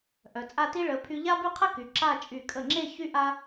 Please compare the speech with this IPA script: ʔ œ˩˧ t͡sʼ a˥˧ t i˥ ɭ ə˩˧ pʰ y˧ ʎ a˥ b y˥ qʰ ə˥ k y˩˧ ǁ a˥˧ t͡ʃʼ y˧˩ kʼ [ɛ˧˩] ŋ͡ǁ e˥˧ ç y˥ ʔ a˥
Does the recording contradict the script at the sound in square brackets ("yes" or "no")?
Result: yes